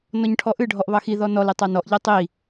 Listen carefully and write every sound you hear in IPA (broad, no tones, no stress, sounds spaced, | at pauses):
n ɔ ɲ ʈʰ ɔ ʔ ɨ ɖʱ ɔ ʔ β ɑ x i ð ɔ n ɔ l e tˤ ɑ n ɔ ʔ ʎ e tˤ i